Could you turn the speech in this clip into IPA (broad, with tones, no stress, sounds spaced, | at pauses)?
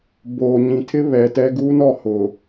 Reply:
b oː˨ ɲ ĩ˨ tʰ ɪ˦ β ɛ˨ t ɛ˦ ɡ uː˦ n ɔ˦˨ h ʊ˨